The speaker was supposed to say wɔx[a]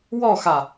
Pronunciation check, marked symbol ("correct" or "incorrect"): correct